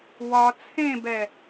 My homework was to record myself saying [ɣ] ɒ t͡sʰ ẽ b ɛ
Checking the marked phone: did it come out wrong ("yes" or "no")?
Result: yes